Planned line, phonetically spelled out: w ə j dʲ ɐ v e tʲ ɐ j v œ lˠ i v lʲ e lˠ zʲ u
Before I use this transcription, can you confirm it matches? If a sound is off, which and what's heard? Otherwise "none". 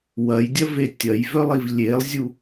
ə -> ɐ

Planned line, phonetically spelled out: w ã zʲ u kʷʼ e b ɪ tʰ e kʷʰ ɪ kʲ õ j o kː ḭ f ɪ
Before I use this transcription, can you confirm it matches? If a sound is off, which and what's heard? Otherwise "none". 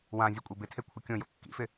none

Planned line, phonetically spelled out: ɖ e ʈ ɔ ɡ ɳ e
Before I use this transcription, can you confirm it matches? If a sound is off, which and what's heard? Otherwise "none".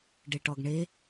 none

